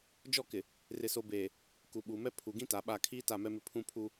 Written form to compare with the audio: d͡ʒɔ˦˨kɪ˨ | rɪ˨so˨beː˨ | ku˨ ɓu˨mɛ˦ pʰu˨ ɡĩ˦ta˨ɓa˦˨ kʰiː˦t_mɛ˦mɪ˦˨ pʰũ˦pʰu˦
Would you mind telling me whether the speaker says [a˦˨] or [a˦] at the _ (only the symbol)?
a˦˨